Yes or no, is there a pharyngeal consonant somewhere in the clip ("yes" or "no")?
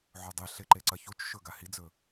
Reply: yes